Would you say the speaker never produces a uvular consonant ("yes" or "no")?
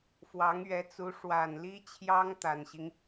yes